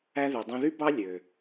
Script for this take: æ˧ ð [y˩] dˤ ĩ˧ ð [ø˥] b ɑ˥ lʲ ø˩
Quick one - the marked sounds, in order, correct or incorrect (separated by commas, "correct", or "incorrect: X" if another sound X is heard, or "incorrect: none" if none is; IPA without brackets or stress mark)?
correct, incorrect: y˥